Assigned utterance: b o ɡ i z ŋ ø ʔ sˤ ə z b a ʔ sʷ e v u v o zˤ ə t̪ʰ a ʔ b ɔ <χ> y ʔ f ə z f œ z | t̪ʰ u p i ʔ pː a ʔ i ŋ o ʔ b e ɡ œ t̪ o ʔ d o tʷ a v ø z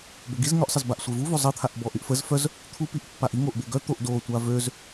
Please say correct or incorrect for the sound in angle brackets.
incorrect: ʔ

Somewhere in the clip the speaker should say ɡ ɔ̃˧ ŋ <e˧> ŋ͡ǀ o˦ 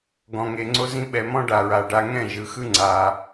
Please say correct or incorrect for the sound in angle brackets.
correct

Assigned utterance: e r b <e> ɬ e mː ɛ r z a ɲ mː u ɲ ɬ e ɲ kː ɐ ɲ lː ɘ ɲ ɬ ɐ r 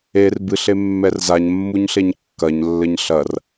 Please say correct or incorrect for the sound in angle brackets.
incorrect: ɨ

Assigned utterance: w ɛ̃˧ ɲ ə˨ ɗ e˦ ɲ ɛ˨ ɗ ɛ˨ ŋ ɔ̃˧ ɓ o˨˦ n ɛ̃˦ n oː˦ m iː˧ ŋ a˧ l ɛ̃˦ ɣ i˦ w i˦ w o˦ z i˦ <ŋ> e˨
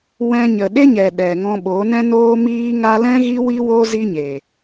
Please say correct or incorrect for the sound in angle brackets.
incorrect: ɲ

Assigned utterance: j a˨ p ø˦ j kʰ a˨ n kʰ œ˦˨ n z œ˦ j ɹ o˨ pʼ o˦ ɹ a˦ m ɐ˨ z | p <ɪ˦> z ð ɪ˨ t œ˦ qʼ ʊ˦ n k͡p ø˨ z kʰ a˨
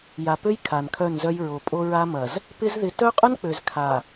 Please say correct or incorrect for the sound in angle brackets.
correct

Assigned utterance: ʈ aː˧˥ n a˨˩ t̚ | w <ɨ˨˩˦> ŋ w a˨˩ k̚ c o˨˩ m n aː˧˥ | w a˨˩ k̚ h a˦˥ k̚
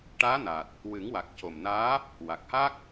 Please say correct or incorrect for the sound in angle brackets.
correct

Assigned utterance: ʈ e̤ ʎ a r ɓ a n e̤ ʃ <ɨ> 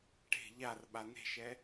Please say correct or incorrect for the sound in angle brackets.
incorrect: ɛ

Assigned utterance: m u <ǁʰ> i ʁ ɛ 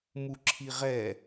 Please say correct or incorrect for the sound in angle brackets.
correct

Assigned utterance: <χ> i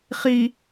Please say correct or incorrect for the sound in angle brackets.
correct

